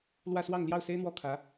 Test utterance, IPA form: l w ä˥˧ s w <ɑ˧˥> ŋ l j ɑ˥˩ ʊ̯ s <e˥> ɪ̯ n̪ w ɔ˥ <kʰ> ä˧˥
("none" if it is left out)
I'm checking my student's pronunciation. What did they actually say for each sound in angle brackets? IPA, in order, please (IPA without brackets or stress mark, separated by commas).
ɑ˥˧, e˥, kʰ